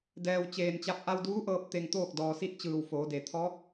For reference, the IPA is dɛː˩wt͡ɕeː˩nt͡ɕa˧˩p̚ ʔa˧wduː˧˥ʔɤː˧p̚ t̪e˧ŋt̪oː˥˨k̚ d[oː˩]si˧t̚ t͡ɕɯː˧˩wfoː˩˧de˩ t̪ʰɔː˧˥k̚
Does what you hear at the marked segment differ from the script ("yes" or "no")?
yes